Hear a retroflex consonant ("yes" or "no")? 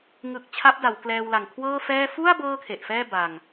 no